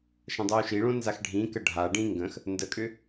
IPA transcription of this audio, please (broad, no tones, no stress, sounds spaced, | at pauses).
ʃ ə̃ dˤ o u̯ ʃ i ɭ õ n z a x ɖʱ ĩ k ə ɖʱ a ɖ ĩ ŋ ɡ ə̃ x | n d ə kʼ ʏ